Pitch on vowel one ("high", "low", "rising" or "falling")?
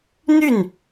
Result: falling